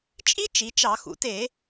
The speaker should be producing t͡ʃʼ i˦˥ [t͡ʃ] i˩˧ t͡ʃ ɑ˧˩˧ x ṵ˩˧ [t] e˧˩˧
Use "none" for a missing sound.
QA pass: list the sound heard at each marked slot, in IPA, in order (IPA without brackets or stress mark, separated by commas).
t͡ʃ, t